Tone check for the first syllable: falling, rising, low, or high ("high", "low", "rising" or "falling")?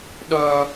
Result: high